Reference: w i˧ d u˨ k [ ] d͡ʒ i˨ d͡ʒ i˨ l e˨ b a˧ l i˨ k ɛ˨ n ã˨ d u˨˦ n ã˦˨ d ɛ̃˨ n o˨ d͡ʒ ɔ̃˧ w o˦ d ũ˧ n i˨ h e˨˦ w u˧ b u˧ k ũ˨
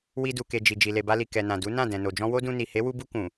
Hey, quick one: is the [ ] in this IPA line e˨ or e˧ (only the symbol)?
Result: e˨